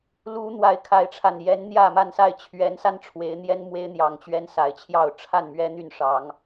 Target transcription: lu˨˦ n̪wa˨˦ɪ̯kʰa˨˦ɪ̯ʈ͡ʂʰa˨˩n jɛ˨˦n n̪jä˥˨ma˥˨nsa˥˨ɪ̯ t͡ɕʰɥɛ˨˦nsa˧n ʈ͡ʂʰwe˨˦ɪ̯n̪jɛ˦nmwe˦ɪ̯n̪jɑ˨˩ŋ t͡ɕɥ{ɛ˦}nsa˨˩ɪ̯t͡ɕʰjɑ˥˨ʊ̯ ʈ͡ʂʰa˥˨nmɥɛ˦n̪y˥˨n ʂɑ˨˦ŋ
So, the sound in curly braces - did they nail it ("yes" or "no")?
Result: yes